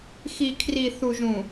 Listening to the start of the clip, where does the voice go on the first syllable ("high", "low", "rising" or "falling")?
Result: low